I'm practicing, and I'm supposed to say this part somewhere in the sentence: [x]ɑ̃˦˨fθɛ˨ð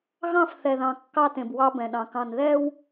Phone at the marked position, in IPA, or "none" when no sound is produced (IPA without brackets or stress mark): ɣ